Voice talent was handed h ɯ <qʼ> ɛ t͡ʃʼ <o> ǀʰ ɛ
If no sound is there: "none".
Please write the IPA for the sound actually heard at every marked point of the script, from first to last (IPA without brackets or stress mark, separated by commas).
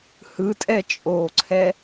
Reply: tʼ, oː